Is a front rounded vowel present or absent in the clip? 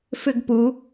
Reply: present